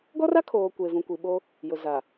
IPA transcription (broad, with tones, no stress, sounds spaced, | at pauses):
ɡ ɔ˦ r a˦ kʰ oː˨ kʷ e˨ v ũ˨ kʷ i˨ ɓ o˦ | j ʊ˨ z a˨